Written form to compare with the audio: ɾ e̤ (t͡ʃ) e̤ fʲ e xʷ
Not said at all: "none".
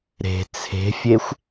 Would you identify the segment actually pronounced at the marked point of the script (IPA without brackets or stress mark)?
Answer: t͡sʰ